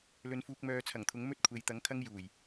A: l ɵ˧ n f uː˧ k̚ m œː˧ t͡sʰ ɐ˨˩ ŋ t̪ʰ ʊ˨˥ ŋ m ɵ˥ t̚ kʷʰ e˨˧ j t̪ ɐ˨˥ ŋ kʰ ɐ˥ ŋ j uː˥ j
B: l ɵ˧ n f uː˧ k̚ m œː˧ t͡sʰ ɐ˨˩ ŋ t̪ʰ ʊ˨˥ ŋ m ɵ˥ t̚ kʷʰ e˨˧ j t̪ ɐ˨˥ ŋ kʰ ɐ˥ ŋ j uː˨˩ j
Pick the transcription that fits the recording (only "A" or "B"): B